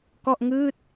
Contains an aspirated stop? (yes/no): no